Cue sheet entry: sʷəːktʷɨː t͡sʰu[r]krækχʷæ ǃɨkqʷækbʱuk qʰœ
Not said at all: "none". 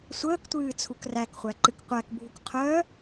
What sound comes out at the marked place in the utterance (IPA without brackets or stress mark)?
none